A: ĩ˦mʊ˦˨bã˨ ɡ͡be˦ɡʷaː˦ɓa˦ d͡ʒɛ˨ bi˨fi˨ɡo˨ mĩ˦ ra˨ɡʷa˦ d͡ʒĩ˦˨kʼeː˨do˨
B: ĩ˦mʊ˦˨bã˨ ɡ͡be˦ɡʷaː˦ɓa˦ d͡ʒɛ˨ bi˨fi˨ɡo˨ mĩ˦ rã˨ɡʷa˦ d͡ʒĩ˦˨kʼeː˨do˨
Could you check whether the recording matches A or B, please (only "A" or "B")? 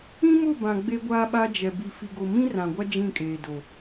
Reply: B